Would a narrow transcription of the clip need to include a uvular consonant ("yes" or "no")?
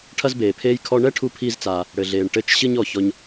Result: no